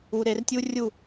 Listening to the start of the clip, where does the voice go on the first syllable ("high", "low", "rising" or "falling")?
low